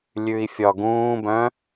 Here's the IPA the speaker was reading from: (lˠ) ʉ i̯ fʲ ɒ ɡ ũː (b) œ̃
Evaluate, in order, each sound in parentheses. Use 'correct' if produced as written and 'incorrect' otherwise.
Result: incorrect: lʲ, correct

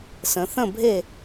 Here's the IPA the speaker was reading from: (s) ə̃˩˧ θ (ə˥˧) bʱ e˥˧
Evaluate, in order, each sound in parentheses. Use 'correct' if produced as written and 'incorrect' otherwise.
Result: correct, incorrect: ə̃˥˧

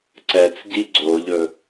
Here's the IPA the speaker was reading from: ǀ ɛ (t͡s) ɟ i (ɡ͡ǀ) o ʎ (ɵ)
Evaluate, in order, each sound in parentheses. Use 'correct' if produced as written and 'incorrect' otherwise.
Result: correct, correct, correct

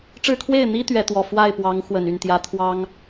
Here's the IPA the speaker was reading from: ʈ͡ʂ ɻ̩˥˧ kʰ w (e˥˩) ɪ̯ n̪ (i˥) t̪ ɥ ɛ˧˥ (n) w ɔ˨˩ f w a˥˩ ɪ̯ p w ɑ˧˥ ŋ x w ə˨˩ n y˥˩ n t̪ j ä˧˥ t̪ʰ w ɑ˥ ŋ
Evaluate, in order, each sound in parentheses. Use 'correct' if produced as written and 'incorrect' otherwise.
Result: correct, correct, incorrect: t̪

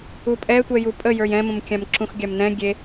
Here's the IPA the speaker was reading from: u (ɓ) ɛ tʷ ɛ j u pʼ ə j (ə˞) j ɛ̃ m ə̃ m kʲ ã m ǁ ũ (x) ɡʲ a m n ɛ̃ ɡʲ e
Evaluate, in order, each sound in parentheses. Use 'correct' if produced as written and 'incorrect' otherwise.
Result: incorrect: pʼ, correct, correct

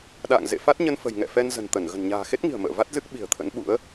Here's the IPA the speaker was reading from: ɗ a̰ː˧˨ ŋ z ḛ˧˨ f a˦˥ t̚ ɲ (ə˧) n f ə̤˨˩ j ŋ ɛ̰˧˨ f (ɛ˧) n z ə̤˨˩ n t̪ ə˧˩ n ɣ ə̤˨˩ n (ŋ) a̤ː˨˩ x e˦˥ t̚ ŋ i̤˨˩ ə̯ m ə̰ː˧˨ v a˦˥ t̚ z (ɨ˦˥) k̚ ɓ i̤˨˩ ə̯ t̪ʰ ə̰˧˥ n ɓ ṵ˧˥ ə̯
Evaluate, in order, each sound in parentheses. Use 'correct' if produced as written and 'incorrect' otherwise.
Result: correct, correct, incorrect: ɲ, correct

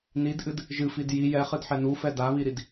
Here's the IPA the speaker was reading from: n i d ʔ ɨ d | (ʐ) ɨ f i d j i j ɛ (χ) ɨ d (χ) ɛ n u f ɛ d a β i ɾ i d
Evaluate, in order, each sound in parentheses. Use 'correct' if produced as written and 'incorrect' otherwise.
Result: incorrect: ʒ, correct, incorrect: ħ

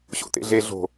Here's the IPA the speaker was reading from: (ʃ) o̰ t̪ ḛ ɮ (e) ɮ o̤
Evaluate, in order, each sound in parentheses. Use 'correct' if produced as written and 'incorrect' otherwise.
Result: incorrect: ɕ, correct

